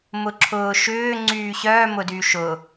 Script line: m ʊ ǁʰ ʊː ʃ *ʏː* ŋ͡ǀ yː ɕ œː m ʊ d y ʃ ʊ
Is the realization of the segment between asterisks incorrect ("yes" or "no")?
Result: no